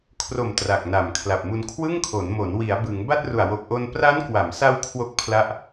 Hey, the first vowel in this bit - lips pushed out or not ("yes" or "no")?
yes